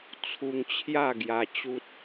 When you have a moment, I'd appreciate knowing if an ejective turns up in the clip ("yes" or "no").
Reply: no